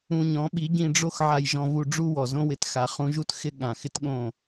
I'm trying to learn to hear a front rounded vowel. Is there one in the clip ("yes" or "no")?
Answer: no